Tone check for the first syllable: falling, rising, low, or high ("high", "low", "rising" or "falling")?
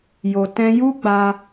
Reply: low